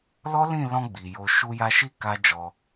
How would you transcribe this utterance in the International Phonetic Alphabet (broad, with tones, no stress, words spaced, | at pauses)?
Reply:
lɔ˦lĩ˦˨lɔ̃˧ ɡ͡bi˨jo˧ ʃu˧ja˧ʃi˦ ka˦d͡ʒɔ˧